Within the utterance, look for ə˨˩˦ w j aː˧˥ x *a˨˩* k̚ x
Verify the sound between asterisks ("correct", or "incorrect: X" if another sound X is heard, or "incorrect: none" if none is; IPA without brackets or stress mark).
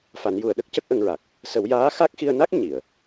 incorrect: a˦˥